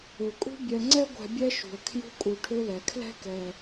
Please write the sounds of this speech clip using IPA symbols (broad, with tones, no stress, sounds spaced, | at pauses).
ø˩ kʼ ṳ˦ bʲ ɛ˨ ŋ͡ǀ ɛ˦ ɡʷ ɛ̤˨ bʲ ɛ˦ ʃ ṳ˩ ə̯ kʰ j ṳ˦ kʼ u˨ ʈʰ ø˥ l ɛ˩ kʰ l ɛ̤˦ k ɛ˩